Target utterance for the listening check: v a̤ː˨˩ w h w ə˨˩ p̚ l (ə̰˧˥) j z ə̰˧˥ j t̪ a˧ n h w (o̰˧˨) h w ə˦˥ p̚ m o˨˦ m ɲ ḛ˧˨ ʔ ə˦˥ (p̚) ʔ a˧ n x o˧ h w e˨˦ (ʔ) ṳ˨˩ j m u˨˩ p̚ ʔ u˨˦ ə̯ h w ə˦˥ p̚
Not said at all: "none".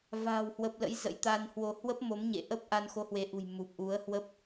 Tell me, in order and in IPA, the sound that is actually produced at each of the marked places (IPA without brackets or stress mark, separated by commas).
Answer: ə̰˧˥, o˧, p̚, ʔ